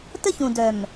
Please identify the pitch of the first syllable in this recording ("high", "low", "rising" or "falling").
high